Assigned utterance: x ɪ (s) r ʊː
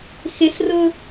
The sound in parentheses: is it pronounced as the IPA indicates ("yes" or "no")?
yes